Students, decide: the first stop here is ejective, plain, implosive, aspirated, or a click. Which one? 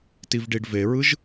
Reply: plain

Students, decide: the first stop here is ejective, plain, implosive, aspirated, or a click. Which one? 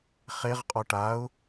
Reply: ejective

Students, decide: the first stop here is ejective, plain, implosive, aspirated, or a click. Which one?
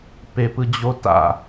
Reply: plain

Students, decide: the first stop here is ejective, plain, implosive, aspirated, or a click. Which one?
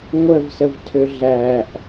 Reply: aspirated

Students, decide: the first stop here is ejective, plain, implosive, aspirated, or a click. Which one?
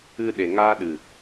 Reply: implosive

